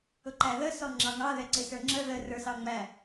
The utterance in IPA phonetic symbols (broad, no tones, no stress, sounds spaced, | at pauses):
ʊ ǃ æ ð ə s ɔ ŋ͡ǁ ɑ ŋ ɑ ð ɛ ǀ ɪ s ə˞ ŋ͡ǁ ə ð ə r ə˞ s ɑ ŋ͡m æ